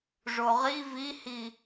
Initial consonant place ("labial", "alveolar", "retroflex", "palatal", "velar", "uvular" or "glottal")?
retroflex